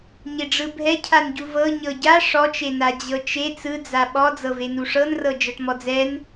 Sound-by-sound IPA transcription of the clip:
ɲ e ɖ͡ʐ ɯ bʱ ɛ cʰ a n ɟ u v ɤ ɲ ɤ ɟ a ʂ ɔ t͡ʃ e n a d͡ʑ ɤ t͡ʃ e t͡s ɯ d͡z a ɓ ɔ d͡z ɤ v e n u ʂ ɤ n r ɤ d͡ʒ ɤ ʈ m ɔ d͡z ɛ n

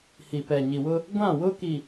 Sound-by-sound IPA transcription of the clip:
h i˨ p ɛ˨ ɲ i˨ w ʊ˦ | ɡʷ ã˦˨ w ʊ˦ k i˨

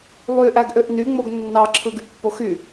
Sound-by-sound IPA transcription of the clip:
lˠ y ʔ æ ɡ ʔ ø ʔ n y ŋ͡m o ɡ nː ɑ ǁʰ ɯ ɡ y pː o x y

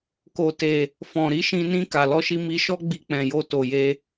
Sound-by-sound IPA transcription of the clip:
k o˨ t e˨ | f ɔ̃˨ ɾ i˨˦ ʃ ĩ˧ n ĩ˧ k a˨ l ɔ˧ ʃ i˧ m i˧ ʃ ɔ˦ ɡ͡b i˧ k͡p ɛ̃˨ j o˧ t o˨ j e˧

